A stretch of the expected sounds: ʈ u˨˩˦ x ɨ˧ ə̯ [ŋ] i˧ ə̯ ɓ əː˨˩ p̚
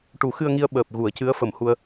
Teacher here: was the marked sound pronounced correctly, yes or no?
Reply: yes